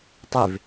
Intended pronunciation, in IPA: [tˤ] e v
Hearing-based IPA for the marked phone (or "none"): tˤ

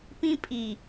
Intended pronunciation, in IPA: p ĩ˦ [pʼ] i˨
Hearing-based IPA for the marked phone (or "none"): pʼ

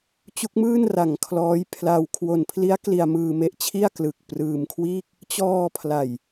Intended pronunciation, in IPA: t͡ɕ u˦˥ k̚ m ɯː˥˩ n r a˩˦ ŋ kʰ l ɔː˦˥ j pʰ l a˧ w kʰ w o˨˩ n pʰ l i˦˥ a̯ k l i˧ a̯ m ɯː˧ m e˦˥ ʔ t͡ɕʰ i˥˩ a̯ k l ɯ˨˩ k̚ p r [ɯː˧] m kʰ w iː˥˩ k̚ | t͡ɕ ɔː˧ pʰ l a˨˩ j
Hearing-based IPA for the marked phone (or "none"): ɯː˧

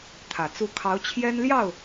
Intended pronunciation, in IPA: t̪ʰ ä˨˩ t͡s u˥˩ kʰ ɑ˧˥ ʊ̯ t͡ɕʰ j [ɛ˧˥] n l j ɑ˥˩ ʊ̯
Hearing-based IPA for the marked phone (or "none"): ɛ˥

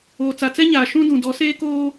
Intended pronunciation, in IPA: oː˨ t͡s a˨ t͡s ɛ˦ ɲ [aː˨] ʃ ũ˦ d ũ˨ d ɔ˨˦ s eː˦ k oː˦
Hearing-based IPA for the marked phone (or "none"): aː˨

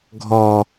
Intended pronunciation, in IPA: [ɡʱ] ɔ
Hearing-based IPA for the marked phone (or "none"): ɡʱ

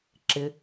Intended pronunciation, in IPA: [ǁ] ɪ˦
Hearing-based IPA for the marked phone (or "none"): ǁ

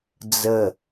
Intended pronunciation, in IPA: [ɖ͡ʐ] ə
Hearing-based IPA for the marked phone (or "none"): d͡z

